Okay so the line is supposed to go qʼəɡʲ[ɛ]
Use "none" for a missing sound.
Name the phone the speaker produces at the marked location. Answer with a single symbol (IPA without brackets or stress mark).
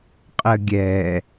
ɛ